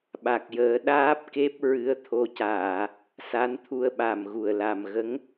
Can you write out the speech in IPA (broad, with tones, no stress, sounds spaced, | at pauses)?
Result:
ɓ a˨˩ k̚ j əː˨˩˦ ɗ aː˦˥ p̚ k e˦˥ p̚ ɹ ɨ˧˥ ə̯ t̪ʰ o˧˥ c aː˨˩˨ | s a˧˥ n t̪ʰ u˧ ə̯ ɓ a˨˩ m ɣ u˨˩ ə̯ l a˨˩ m ɣ ə˧˥ ŋ